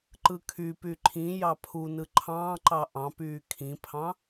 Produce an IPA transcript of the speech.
ǃ ɯ kʰ y p y ǃʰ ĩ j ɑ pʰ u n ɯ ǃʰ ɑ̃ː ǃ ɑ ʔ ɑ̃ p yː kʰ ĩ pʰ ɑ̃

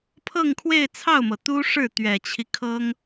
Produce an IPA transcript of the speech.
pʰ ɤ˥˧ ŋ kʰ w e˥˧ ɪ̯ t͡sʰ ɑ˥˩ ʊ̯ m ɤ˩ t̪ u˥ ʂ ɻ̩˥˩ t̪ ɥ ɛ˨˩ t͡ɕʰ i˦ kʰ ɤ˥ ŋ

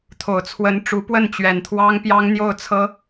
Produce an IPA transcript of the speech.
t̪ʰ o˨˩ ʊ̯ t͡sʰ w ə˧˥ n ʈ͡ʂ u˧˥ p w ə˥˩ n t͡ɕ ɥ ɛ˨˩ n t̪ʰ w ɑ˥ ŋ p j ɑ˥ ŋ n̪ j o˥˩ ʊ̯ t͡sʰ ɤ˥

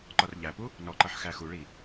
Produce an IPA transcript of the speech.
ǃ ɒ r ʎ æ p u | n ɔ ǃ ʌ ħ x æ x u ɭ i

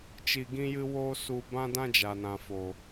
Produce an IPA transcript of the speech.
t͡ʃ i˧ ɡ ĩ˦ j ɨ˦ w o˦ s u˧ b ã˦ d ã˦ d͡ʒ a˨ n ã˨ f o˨

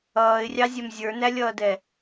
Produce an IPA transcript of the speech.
ʌː ɪ̯ rʲ ɑ zʲ ɛ m zʲ ə˞ n æ lʲ ʌː d ɛ

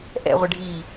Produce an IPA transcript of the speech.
ʔ ɛ̰ ʁʷ ɪ ɖʱ iː

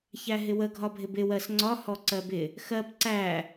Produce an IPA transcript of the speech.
ç æ ɦ ɪ w ə ɡʱ ɒ bʱ ɪ b ɪ w ɜ s ŋ͡ǀ ɒ h ɔ ǀ ɜ b ɪ | x ɜ p ǀ æ

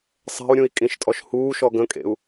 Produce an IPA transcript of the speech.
sˤ ɛ̤ u̯ ɾʲ ũ i̯ kʼ ĩ ʃ tʼ ɔ ʃ h uː ʃ ɔ ɡ ə̃ kʼ ḛ u̯

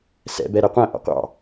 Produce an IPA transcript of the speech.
s ɛ̰ b ɛ ɾ ɛ qʷ æ̃ ʔ ɔ̰ qʷ ɑ̰

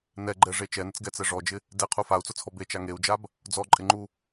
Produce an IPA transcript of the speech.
n ɛ ɡ͡ǃ ɛ ʐ e t͡ʃ ɛ n ɪ t͡s ɡ ɛ t͡s ɛ ʐ ɔ d͡ʒ ɪ | d e qʰ u f a u̯ t͡s ʊ t͡sʰ ɔ b e t͡ʃ a ŋ e u̯ d͡ʒ a b | d͡z ɔ ǃʼ ɪ ŋ͡ǃ u

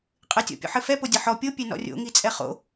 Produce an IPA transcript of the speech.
qʼ ɘ tʲ ɔ̰ pʲ o̰ ħ ɘ f ɛ p o dʲ ʌ ħ ɔ pʲ o pʲ ɛ n ɔ̰ rʲ o̰ ŋ i t͡sʼ ɛ χ o̰

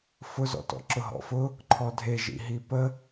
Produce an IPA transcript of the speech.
f ʊ z ɔ̰ t ɔ̰ ǁ ʊ ɦ ɔ̰ f ʊ | ǃʰ ɔ dʱ e ʒ ḭ ɦ i p ə

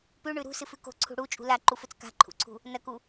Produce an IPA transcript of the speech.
p ʉ ɳ ʉ ɾ ṳ s ɨ f ʉ k o̤ ǀʰ ṳ ɽ u t͡ʃʼ ṳ l a ǃ u f ɵ t͡s k a̤ ǃʰ ṵ ǀʰ ṳ | n ɐ k u

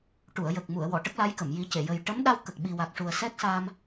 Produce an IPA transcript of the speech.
ʈ u˨˩˨ ə̯ j ə˨˩ k̚ m u˨˩˨ ə̯ w ɔ˨˩˨ ʈ ə˦˥ k̚ l a˧˥ j k ə˨˩˨ m j i˨˩˦ c e˨˩˨ j ə˨˩ j ʈ ə˧˥ m ɗ a˧ w k ə˨˩ k̚ ɓ i˨˩ w a˨˩ k̚ ʂ u˨˩ ə̯ s ɛ˦˥ k̚ s a˧ m

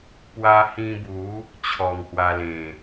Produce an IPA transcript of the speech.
p w a˧ h ĩ˧ b u˨˦ | t͡ɕʰ ɔ˨˩ ŋ h w a˧ l ẽ˨˩

